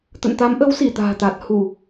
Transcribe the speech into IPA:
t̪ə̰˧˨nt̪a˨˦mʔə˨˦w si˧˩t̪a̤ː˨˩t̪a˨˩t̚ hu˧˩˨

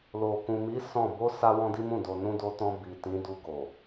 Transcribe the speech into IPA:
lo˨kũ˨mi˨˦ sɔ̃˦˨ bo˧ sa˦wɔ̃˦di˦mũ˦˨ do˨nũ˧ do˧tɔ̃˧ bi˨ tĩ˨˦du˧ ɡo˨

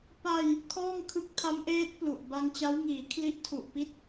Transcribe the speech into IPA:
pa˧j | kʰɔː˥˩ŋkʰɯ˦˥k̚tʰa˦˥mʔeː˦˥t̚ plu˨˩ʔ ba˧ŋt͡ɕa˦˥wŋiː˩˦ kʰli˦˥ʔtʰu˨˩ʔpi˥˩t̚

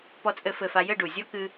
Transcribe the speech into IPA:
pɔ˥t͡sʼɘ˥fɘ˥˧fa˥ jɘ˥˧ɖu˨˩zʲɔ˥ kɨ˥

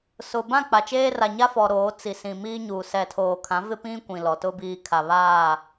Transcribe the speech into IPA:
sʊ˨ bã˦˨k͡pa˨t͡ʃeː˦ ra˨ɲa˦fɔ˨ ɾoː˨˦ t͡si˨ sĩ˨miː˦ɲuː˨ sɛ˨tʰoː˨kʰã˨˦ vɪ˦pĩ˦ kʷĩ˨lɔ˨tʊ˦ biː˨kʰa˨βaː˦˨

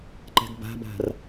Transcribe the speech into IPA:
ǃɛ̤ɡba̤ba̤r

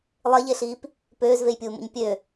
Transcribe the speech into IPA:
lˠeʎeɬiːp | pøːzvejpʲuːmṵɲ pʲø

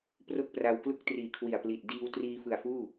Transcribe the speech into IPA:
pro˥˩k̚pra˧w klu˥˩k̚triː˨˩ kʰwi˨˩a̯pli˨˩t̚ diː˧w triː˧fɯ˨˩a̯ fuː˥˩

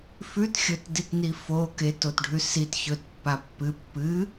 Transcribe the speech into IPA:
fʉt xʲɵtditni fo ketotɖʱʉ sit çɵt pːapːɨ pːɨ

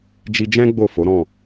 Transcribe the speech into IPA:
d͡ʒi˧d͡ʒɛ̃˦ ɡ͡bo˦˨fo˨˦ɾɔ̃˦˨

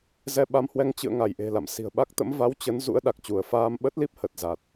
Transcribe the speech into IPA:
zɛ˧ɓa˧mhwɛ˧ŋ t͡ɕɨ̰˧˨ə̯ ŋa˧˩jʔe̤˨˩la̰˧˨m si̤˨˩ə̯ɓa˦˥k̚t̪ə̰˧˥m va˨˦w t͡ɕə˨˦n zṵ˧˥ə̯ɗa˨˩k̚t͡ɕu˧˩ə̯ faː˧mɓə˦˥t̚li˦˥p̚ hə˨˩t̚ za˨˩t̚

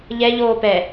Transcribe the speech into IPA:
ʎɛ ʎoːpɛ

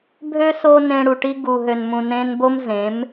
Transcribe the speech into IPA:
bʱø˦ so˦ nẽ˧ɽu˨ʈi˦ ɡu˨ ɦø˨nmũ˨nẽː˧nbo˦m zẽ˨˦m

